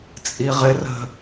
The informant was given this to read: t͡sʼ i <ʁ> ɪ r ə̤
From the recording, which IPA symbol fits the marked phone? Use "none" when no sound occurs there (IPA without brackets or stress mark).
ʁ